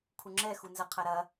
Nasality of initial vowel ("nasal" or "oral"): oral